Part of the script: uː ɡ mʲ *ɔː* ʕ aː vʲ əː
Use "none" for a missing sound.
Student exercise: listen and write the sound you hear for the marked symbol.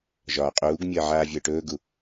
əː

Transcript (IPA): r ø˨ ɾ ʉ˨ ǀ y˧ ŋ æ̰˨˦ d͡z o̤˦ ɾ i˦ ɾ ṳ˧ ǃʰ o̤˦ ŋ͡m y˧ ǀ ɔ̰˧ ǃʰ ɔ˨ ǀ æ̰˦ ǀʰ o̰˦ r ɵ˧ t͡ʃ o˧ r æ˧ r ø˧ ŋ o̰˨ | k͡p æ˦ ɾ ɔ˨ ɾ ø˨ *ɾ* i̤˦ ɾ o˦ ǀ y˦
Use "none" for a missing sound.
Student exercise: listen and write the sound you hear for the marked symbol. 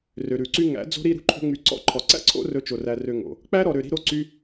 ɾ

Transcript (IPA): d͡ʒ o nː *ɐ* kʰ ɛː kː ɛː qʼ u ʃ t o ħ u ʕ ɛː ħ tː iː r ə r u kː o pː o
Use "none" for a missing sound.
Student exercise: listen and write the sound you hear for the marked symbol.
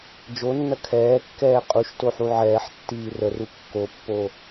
ɐ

